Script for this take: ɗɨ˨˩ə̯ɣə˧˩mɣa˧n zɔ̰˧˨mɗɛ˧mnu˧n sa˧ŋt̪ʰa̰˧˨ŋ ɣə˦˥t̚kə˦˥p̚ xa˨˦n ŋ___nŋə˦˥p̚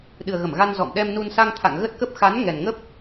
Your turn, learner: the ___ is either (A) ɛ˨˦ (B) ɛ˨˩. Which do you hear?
B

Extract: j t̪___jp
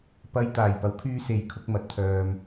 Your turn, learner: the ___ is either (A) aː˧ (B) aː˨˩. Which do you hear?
B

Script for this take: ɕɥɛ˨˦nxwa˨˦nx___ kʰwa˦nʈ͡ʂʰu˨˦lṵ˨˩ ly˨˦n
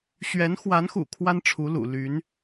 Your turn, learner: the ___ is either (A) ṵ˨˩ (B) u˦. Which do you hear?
A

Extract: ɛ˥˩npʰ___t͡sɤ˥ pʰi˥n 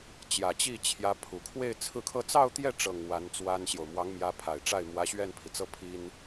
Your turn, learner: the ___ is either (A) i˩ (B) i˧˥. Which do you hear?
A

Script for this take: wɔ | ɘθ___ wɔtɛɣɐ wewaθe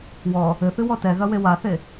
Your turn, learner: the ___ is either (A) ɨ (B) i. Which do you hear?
A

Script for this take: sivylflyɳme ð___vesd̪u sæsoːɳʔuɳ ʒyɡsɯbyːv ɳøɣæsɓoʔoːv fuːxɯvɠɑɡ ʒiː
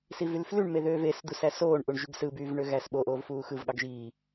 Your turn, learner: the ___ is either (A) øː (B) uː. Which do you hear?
A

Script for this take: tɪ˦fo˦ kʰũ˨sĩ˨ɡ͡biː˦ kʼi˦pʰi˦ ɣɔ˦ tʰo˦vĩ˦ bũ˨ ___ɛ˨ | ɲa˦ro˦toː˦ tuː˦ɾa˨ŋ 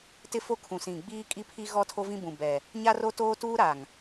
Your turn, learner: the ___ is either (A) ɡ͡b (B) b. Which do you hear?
B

